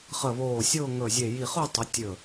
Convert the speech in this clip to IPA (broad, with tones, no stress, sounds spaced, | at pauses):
χ ə˧˩ β oː˧˩ sʲ ʊː˥˧ ŋ ɵ˧˩ zʲ e˧˩ j i˧˩ χ ʊ˥˧ tˤ ə˨˦ tʲ ɵ˧˩